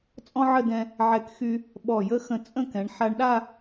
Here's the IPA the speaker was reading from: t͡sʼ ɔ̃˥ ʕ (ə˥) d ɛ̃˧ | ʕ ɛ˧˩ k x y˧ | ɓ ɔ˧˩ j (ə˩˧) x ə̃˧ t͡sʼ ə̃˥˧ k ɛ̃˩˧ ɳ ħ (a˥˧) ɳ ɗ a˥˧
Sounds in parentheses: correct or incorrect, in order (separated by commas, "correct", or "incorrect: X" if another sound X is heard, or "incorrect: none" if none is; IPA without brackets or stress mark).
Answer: incorrect: ə˥˧, incorrect: ə˥, incorrect: a˧